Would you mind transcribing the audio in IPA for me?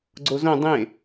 ɡ͡ǀ o z õ dˤ ẽ

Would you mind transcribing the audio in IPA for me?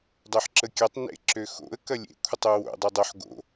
dˤ ø ħ ǁ ə kʲ ɐ tˤ n ḛ ǁ ø x o̰ ə̯ k ɐ lʲ ḛ kʷʰ ə tˤ ø w o̰ dˤ e dˤ o ħ ɡ o̰

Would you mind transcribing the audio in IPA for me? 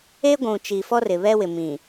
e˦ ɡʷ ũ˨ t͡ʃ i˨ f ɔ˦ r ɪ˨ β ɛ˦ w ɪ˨ m ĩ˨

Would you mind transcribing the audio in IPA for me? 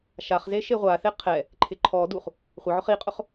ʃ a χ z e ʃ e ʁʷ a θ e qʰ ɛ | ǃʰ ɪ ǃʰ ɔ d u χ | χʷ ɪ ʕ ʊ χ i qʼ ʊ χ

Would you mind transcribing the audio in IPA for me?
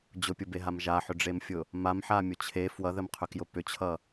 d͡ʑ ʊ pʲ ʊ b e ɦ a m ʒ a ħ ʏ ɖ͡ʐ e m fʲ ʊ | m a m ħ a mʲ ʊ t͡ɕʰ e f w ʌ ð ə m qʰ ʏ k j ʊ p ʏ t͡ɕʰ ʌ

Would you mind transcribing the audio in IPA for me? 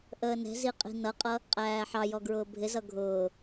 ʔ əː n ɛ̤ z i qʼ i̤ n ʌ qʼ ʌ | qʼ æː ħ ɑ j ɔ ɡ ɹ ʊː bʱ ɪ z ʌ ɡʱ ʊː

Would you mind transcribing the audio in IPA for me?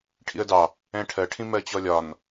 ʈʰ ḭ ə̯ d ɑ | ɛ̃ ʈʰ ɜ ʈʰ ĩ m ɜ t͡ɕ ɔ lʲ ɒ n

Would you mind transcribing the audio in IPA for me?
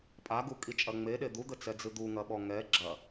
pʼ a ɡ u kʼ i t͡ʃʼ ɐ ŋ͡m e ɗ e d̪ u d̪ ɘ t͡s ɛ d͡z ɨ d̪ u ŋ ɐ ɓ ɔ ŋ ɛ ɡ͡ǁ ɐ

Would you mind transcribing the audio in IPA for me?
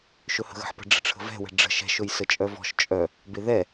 ʃ ɵ h ə̤ ɣ ə̤ ħ p ə̤ ɖ͡ʐ ə̤ ʈ͡ʂʰ ə̤ v ɛ̤ w ɛ̤ ɖ͡ʐ ə̤ ʃ ɛ̤ ʃ ɵ j s ə t͡ʃʼ œ v ɔ̤ ʃ t͡ʃʼ œ | b e ð ɛ

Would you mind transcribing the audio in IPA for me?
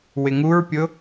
w ɪ ŋ u ɹ pʲ ʊ

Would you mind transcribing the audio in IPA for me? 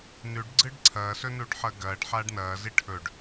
n ʉ ɖ ɡ͡ǀ ɨ ɖ ǀʰ ɐː s ɵ n u ɖ ħ ɐ ɡ ɐː ɖ ħ aː ɖ n ɐː z i ʈʰ ɵ ɖ

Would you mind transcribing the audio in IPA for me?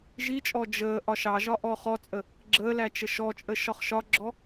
ʒ i t͡ʃʼ ɔ d͡ʒ əː ʔ ɒ ʃ ɑ ʒ ɒ ʔ ɔ χ ɔ t͡sʼ ə | ɡ͡ǁ əː l æ t͡ʃ ə ʃ ɔ t͡ʃʼ ə ʃ ɒ χ ʃ ɒ ɡ͡ǁ ɔ

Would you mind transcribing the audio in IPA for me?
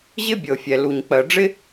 ʑ ɪ˥ bʲ ɤ˩ fʲ ɛ˩ l u˩ ɲ k͡p ɜ˩ ɖ͡ʐ ɪ˥

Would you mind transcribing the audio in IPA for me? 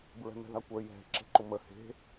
b ɹ ɛ̤ m ɛ̤ ð a kʷ ə˞ j ɛ̤ ǁ ɛ̤ ǃ ʊ m ə h e̤

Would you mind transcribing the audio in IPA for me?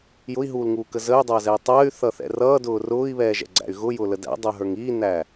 j ʊ i̯ ɦ uː l ŋ uː k ə z ə y̯ dˤ ʌː z ɛ i̯ tˤ əː y̯ θ ʌ θ ɛ̰ r ʌː d ʊː r ʊː i̯ β ɛː ʒ ɛ̰ ɡ͡ǀ æ̰ y̯ ɣ ʊ j ʊː l ə d æ̰ dˤ əː ɦ ə˞ ŋ iː n æ

